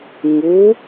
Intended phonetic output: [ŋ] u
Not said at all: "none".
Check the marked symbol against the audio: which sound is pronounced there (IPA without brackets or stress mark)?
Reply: ŋ